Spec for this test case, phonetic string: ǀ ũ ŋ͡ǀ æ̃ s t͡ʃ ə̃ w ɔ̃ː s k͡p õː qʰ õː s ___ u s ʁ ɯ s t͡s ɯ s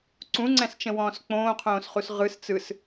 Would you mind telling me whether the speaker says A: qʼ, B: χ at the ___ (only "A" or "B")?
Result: B